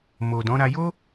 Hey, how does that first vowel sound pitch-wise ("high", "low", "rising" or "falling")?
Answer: low